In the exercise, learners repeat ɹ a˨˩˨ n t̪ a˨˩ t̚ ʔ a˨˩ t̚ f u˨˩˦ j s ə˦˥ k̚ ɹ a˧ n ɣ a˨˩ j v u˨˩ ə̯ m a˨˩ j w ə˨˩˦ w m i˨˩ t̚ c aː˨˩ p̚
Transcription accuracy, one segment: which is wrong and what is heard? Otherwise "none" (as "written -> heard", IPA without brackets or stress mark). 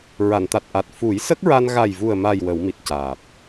none